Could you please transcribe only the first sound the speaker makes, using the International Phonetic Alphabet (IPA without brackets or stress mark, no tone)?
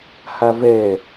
h